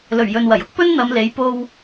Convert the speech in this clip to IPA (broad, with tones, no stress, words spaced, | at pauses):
lɵ˨˩ɥjɵ˨nwɐ˨˩j ʊ˥k̚pɵ˥nn̪ɐ˨˧mle˨˥j po˧w